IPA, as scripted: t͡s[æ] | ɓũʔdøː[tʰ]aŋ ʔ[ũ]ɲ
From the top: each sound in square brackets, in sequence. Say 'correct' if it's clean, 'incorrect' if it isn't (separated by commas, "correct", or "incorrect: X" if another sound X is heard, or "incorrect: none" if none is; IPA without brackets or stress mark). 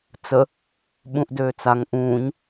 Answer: incorrect: ə, incorrect: t͡s, incorrect: ũː